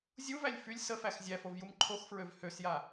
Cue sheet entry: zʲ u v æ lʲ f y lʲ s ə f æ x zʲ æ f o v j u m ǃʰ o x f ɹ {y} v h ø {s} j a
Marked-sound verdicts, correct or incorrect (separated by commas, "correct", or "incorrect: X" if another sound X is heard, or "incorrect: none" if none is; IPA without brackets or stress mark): incorrect: ø, correct